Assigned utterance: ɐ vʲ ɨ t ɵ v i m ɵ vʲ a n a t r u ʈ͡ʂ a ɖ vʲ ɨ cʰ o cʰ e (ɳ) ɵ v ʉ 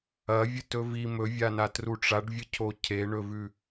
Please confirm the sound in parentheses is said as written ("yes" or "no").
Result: yes